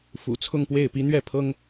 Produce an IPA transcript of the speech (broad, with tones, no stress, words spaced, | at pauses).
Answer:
fṵ˨˩t͡sʰʊ˥˧ŋpwe˥˩ɪ̯pi˥ n̪ɥɛ˥˩pʰɤ˥ŋ